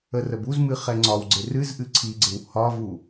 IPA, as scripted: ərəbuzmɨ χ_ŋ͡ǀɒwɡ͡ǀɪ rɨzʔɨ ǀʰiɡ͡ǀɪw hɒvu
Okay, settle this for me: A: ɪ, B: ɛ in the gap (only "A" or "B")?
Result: B